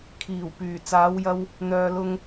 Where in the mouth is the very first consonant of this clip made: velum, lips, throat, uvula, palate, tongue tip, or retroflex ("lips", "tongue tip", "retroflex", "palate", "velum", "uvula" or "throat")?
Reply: velum